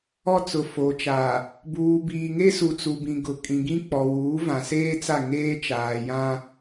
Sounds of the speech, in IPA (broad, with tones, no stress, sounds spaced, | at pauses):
ɔ˦ t͡s ʊ˨ f o˨ t͡ʃ a˨ | b uː˨ b iː˨ ŋ e˦ s u˨ t͡s u˨ b ĩ˨ ɡ ʊ˨ kʼ ĩ˨ ɡ ĩ˦ k͡p ɔ˨ w uː˨˦ v ã˨ s eː˦ t͡s a˦˨ ŋ eː˦ t͡ʃ aː˨ j ã˦